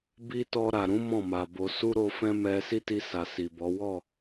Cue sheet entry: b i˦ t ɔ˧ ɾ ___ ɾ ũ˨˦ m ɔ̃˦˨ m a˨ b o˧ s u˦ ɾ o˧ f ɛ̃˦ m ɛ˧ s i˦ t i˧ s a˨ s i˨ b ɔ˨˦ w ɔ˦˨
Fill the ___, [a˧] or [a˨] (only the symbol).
a˨